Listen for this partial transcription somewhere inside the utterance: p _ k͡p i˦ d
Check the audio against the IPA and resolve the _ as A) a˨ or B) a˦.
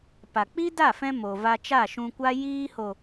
A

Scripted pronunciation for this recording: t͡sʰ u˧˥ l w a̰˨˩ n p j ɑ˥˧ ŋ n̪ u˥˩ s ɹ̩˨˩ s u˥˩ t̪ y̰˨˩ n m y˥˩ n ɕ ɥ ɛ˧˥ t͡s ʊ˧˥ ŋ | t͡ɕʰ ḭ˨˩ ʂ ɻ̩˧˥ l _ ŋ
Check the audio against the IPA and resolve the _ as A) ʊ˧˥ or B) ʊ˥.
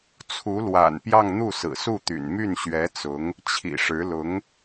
A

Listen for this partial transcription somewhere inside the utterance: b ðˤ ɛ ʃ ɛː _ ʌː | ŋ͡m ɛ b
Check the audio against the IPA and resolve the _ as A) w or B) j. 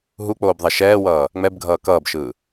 A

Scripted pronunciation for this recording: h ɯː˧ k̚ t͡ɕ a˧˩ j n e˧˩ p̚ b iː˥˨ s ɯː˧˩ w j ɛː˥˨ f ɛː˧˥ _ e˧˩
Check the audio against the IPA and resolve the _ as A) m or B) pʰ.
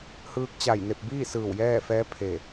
B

